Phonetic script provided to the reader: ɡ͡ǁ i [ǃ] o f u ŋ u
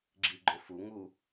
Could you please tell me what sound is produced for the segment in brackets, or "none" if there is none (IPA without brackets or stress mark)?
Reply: ɡ͡ǃ